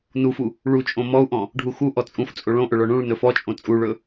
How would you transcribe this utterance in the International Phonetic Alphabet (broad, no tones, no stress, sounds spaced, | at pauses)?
n u f u | ɭ u t͡ʃʼ õ m ɔ u̯ ʔ ɔ̃ | ɖʱ u x u ʔ ɔ t͡sʼ ũ f t͡sʼ o ɭ õ ʔ ɵ ɭ ɔ ɳ ũ ɭ n ɵ f ɔ t͡ʃʼ õ t͡sʼ u ɭ ɵ